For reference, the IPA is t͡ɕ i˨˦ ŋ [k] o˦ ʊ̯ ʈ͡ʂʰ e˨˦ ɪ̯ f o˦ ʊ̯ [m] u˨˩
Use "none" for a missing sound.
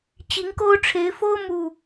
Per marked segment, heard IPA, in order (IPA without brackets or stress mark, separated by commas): k, m